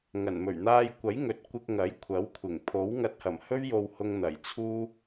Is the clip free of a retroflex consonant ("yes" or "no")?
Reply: yes